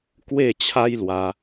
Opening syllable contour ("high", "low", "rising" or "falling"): falling